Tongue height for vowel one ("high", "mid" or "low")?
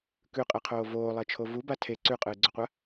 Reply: high